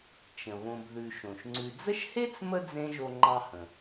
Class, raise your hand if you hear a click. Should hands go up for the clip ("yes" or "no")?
yes